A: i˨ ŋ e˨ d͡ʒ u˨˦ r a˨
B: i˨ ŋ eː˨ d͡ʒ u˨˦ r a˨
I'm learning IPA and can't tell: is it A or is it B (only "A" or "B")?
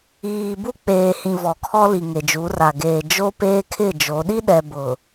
A